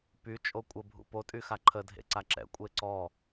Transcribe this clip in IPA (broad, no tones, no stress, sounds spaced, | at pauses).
p y t͡ʃʼ o kʷʼ ə bʱ ṵ p o tʼ y x a ǃʰ ə dʱ ḛ ǀ a ǁ ɛ̰ kʷʼ e ǀ ɔ